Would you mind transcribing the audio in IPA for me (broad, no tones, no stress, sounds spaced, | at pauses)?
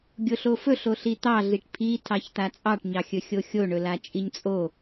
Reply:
ɡʲ o ɬ o f ɵ ɬ o ɬ i t̪ ɑ ɮ i ʈ pʰ i tʰ ɑ ç t̪ a t͡sʼ ɑ ʈ ɲ ɑ xʲ ɵ xʲ o xʲ o ɳ ɵ l a t͡ʃʼ i ɲ t͡sʼ o